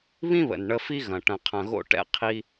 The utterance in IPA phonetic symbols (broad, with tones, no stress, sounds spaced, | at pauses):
β ĩ˦ β ə̰˨ n ɳ ə˧ f i˦ ɣ ɐ̃˨ ʈ ɐ̃˨ qʰ ɐ̃˨ ɣ o̰˧ ʈ ɛ̰˧ qʰ i˧